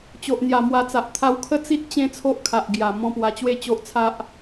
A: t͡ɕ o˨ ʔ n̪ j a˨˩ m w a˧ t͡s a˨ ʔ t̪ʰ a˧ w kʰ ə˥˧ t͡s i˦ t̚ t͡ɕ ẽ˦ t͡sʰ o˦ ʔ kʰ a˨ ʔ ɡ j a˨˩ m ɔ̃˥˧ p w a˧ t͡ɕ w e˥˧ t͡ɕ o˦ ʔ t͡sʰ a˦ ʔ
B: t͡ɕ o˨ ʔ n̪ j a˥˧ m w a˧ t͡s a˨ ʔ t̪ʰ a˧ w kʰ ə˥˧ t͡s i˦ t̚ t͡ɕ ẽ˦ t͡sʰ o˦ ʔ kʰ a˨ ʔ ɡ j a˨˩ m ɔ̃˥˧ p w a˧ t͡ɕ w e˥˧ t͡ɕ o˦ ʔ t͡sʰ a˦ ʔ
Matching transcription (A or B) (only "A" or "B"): A